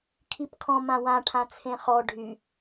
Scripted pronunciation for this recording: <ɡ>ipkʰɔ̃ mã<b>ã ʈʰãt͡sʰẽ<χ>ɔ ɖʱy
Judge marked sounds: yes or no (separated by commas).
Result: no, no, yes